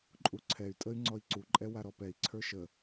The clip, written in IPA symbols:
ǃʼuǀʰɛy̯tʼəy̯ ŋ͡ǀɔi̯ǀuǃʼɛ waɾɔpɛi̯ ǀʰə˞ʃə

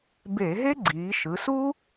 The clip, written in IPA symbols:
be˧˩˧ɦe˥ɡ͡ǀiː˩˧ ʃɯ˩˧ su˥

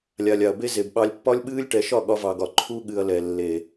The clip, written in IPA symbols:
lʲa˨lʲa˨ɐ̯be˧ ze˨bɓɑ˧lʲpːɒ˦lʲɓɨː˦lʲ ʈɛ˧ ʃɒ˦˨ɠɒ˧vɑ˨ɡɒ˨ ǃʰu˧ɠɨ˨ɐ̯ lɛ˨lːe˨

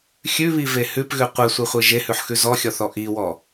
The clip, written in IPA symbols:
xʲʉβive hʉpɣʉ qʷesʷeχʷe ʒehʉħxʉ zɔxʲɔθɔ ʔiwɔ

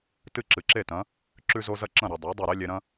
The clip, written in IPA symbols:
tɨ˥˩ǁɨ˩ǁe˥˩tɐ̃˩˥ | ǁʉ˧zo˧ zɐ˥˩ǁɐ̃˥˩ ɾi˩dˤa˩˥ dˤe˥˩ɾe˥lʲe˧ɾɐ̃˥

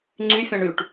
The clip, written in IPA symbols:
ŋ͡ǀyfʲãɳ yʈ

